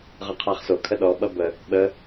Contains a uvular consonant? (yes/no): yes